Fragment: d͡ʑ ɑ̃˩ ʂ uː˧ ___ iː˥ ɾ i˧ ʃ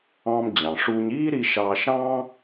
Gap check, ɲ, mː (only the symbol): ɲ